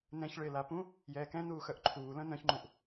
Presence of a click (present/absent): present